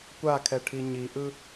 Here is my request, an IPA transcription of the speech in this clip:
kʷakʰɛʈʰi ɲiʔɯ

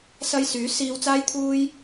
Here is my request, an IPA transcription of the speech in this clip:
sɐ˧jsyː˨˥siː˧w t͡saː˧jt̪ʰuː˧j

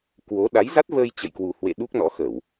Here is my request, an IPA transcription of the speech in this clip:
kwo˨˦ ɗa˨˦jza˦˥t̚vəː˧j t͡ɕə̰˧˨jkwu˨˩hwḛ˧˨ ɗu˦˥k̚nɔ̰˧˥xə˧˩˨w

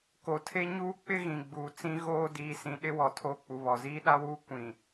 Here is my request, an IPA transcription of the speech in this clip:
ko˨tʰe˦ ɲuː˦k͡pɪ˦ ɣĩ˨ɡ͡buː˨ t͡sĩ˦ ɣoː˦ diː˨sĩ˨ ɗɪ˦wɔ˨ tʰoː˦k͡pu˨βɔ˨ ziː˦ɗa˦wuː˦ kʷĩ˨

